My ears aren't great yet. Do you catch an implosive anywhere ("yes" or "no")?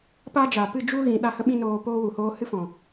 yes